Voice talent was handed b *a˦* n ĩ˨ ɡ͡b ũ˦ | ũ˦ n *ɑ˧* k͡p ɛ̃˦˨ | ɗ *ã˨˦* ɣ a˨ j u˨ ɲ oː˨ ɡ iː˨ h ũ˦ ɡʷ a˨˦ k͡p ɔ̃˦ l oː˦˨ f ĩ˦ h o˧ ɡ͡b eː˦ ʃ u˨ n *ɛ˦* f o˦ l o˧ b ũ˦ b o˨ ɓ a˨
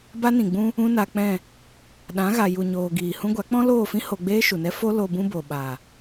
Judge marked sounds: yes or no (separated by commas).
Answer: yes, no, yes, yes